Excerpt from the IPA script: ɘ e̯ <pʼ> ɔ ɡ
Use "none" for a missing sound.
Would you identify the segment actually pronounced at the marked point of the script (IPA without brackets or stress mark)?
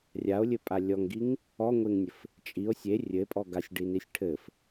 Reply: pʼ